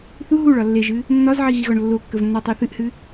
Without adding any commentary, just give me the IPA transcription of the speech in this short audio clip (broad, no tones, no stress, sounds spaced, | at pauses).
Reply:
θ u ɦ u ɭ ɒ lː e ʒ ɨ | nː ɒ z ʕ i ɣ i ɣ ɒ ɳ lː o kː ə v nː a tˤ e θ ɨ ʔ h ɨ